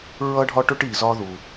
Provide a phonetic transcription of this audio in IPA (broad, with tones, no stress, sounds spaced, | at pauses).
ɹ ʌ˦ ɖʱ ɒ˦ ʈ ʊ˦ ʈ i˨ z ɒ˦ ð u˨